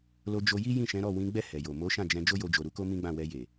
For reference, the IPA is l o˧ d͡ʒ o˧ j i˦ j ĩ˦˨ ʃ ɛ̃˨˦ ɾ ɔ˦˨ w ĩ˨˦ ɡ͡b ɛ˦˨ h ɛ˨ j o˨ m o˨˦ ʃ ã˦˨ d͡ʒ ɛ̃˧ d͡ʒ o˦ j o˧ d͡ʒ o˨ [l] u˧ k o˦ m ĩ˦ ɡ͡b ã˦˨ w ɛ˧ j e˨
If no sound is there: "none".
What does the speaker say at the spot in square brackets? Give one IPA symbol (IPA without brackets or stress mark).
ɾ